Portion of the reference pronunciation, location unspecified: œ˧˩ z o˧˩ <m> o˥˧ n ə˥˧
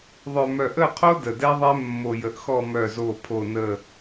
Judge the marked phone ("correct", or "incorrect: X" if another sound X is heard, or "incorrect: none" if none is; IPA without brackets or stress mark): incorrect: pʰ